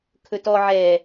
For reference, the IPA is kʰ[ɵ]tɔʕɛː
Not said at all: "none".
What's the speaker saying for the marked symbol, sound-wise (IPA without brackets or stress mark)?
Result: ɵ